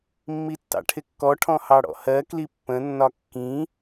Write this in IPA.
mːitːɑ̰ʈʰɪkːɔ ʈʰɔ̃hɑɽɔ̰hɜ klipːə̃ nːɒkːĩ

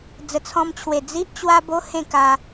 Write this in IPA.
d͡zə˨˩t͡sʰɔ̃˧m t͡ɕʰwe˨˩ d͡zi˦ʔt͡ɕwa˦ bo˦ hẽ˥˧ka˧

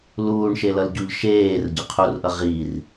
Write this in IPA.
luːɳʃelʌlɟuʎ ʃeːrɟʌ qʰurʔʌ ʁir

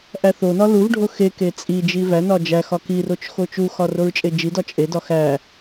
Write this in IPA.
ʔæθonɒ luvɖʱo xeke t͡sʼi d͡ʒivænɒ d͡ʒæ xɒkirot͡ʃ xot͡ʃuxɒ roɹt͡ʃʼed͡ʒidɒ t͡ʃʼedɒ xæ

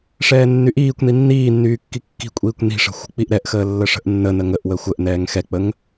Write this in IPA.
ʂɛːnːyʔiːkʷni nːiːnːyː kːikːi̤kʷʼiːkʷ ni̤ʂə̤ xʷə̤k͡piʔɾɛʔxəː lːəʂə̤ʔnːənə ŋəʔwə xʷəʔnɛːŋ xɛk͡pəŋ

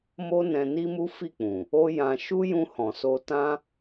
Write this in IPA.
mo˦nɛ̃˧ ni˦mu˦fi˦˨k͡pũ˨ | o˦jã˧ ʃu˦jũ˧ hɔ̃˨so˧tã˦

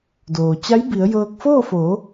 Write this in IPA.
doː˩t͡ɕa˧˥jbi˩˧ə̯jɤː˧k̚ foː˥˨foː˩˧

